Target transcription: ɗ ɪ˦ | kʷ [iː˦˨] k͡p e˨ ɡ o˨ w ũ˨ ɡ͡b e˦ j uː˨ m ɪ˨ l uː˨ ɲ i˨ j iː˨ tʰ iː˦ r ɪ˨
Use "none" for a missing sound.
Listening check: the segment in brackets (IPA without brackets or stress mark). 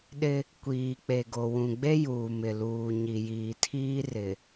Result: iː˨